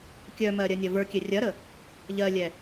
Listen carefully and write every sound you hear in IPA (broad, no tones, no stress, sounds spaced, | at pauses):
kʲ œ m ɜ ɾʲ ɜ nʲ ɐ v ə˞ kʲ ɛ rʲ ɐ ɾ ə | ʎ ɜ lʲ ɛ